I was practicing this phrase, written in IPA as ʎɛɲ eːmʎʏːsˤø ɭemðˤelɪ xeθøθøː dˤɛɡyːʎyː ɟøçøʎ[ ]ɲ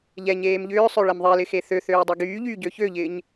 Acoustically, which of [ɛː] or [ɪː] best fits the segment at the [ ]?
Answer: ɪː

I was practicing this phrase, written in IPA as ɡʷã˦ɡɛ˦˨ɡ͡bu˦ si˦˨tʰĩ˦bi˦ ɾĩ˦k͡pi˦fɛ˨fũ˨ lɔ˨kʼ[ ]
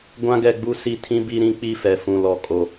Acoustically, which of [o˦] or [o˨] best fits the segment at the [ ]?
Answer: o˨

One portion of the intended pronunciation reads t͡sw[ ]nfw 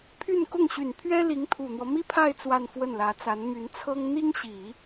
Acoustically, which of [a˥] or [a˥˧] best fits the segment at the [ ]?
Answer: a˥˧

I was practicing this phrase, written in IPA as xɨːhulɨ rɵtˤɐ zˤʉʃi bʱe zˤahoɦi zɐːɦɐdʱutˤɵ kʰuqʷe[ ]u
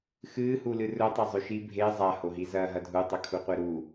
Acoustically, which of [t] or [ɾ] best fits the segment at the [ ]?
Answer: ɾ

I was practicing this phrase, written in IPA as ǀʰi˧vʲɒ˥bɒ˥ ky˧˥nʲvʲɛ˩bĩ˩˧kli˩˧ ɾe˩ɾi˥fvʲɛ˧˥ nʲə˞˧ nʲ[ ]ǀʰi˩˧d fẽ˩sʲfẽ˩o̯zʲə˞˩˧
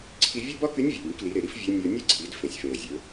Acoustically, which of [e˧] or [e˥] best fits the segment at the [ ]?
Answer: e˥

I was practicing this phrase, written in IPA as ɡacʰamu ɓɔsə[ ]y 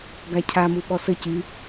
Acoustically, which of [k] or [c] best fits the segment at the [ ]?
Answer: c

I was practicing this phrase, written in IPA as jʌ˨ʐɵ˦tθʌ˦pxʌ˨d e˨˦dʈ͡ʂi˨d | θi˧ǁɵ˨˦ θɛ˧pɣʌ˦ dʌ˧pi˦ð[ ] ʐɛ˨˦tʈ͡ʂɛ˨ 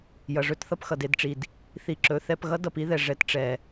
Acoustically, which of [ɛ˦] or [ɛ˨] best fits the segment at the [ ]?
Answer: ɛ˨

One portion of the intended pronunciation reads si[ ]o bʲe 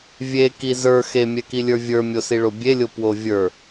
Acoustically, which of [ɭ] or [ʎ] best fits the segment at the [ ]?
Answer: ɭ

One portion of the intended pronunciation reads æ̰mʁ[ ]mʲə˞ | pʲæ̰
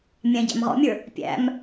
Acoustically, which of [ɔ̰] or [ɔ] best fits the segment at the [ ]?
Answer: ɔ̰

